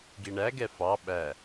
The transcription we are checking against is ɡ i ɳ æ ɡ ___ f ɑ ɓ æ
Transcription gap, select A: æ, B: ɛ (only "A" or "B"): B